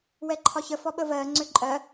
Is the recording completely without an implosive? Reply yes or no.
no